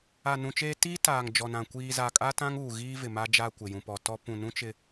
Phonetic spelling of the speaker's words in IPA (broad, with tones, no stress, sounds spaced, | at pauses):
a˨ n ũ˨ t͡ʃ eː˦ t iː˦ t aː˨ ŋ d͡ʒ ɔ˨ n ã˨ kʷ iː˨ z a˨ kʼ a˦ t ã˦ ŋ uː˨ ɣ iː˦ v ɪ˨ m a˦ d͡ʒ a˦˨ kʷ ɪ˨ j ũ˨ p ɔ˨ t ɔ˦ p ũ˨ n ũ˦ t͡ʃ ɪ˨